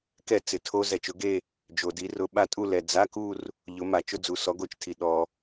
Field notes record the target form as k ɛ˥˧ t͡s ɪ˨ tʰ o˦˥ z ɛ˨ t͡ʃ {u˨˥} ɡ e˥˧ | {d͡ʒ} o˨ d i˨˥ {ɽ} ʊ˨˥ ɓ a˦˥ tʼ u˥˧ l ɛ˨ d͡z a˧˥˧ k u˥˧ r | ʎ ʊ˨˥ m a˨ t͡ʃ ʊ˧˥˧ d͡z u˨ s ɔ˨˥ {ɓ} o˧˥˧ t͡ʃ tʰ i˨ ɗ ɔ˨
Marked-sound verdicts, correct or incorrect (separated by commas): incorrect, correct, incorrect, incorrect